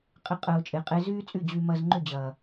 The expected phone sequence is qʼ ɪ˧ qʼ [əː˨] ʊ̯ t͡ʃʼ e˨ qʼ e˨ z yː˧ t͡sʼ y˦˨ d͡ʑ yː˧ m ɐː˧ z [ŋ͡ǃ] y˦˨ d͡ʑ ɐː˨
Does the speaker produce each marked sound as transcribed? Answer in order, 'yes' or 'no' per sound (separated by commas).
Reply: yes, yes